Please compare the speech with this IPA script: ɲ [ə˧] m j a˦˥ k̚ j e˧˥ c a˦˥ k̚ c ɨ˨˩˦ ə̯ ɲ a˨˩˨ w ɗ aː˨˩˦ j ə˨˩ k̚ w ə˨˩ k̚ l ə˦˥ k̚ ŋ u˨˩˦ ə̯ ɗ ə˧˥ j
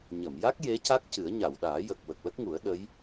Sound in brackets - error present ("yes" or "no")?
yes